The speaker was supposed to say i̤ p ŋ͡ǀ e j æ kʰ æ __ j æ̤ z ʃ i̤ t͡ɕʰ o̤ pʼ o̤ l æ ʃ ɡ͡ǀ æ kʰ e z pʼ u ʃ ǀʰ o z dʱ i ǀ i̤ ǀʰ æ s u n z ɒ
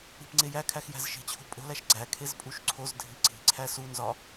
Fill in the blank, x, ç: x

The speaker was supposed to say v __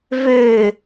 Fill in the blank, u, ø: ø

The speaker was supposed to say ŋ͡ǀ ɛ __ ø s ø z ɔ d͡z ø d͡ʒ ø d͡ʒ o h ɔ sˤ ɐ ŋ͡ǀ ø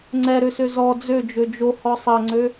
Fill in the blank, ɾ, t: ɾ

